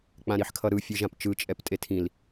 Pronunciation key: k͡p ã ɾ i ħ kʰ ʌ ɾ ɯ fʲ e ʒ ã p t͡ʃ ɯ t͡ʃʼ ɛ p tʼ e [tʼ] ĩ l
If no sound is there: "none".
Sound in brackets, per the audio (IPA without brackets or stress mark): tʰ